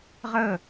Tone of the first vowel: falling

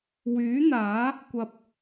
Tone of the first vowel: rising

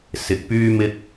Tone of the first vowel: low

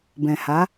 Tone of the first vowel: low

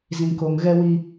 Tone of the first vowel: low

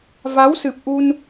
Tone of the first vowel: rising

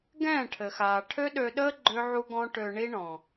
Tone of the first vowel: falling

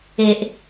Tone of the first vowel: low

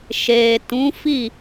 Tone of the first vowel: low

